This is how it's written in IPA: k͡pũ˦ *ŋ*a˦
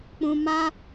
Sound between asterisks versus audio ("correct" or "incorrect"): incorrect